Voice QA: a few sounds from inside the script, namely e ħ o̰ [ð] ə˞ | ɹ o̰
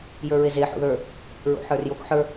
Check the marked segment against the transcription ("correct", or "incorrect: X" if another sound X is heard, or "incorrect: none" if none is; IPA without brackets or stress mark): correct